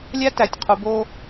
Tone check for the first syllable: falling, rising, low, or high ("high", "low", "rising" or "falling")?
high